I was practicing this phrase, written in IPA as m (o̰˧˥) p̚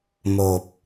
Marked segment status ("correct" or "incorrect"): incorrect